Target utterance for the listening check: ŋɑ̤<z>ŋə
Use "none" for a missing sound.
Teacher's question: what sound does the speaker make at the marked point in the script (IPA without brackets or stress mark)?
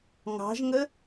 ʒ